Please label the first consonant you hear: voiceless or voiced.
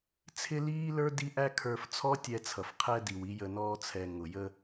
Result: voiceless